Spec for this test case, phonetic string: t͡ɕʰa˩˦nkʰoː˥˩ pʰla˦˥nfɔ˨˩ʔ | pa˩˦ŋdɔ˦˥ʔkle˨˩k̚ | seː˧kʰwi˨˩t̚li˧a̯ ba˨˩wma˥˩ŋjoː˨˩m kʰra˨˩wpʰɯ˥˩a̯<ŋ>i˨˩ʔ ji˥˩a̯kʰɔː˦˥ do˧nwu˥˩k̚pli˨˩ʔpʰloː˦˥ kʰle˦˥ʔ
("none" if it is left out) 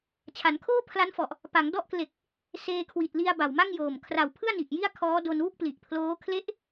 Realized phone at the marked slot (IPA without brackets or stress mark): n